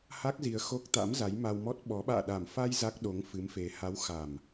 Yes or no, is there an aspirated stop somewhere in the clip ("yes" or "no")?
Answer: no